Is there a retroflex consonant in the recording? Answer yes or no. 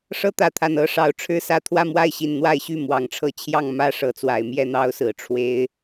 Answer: yes